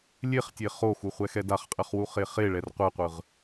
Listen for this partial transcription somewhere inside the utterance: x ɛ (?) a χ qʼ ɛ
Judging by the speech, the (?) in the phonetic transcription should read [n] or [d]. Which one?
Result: d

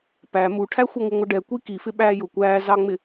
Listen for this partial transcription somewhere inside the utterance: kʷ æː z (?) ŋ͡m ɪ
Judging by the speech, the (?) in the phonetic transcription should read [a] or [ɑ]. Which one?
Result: ɑ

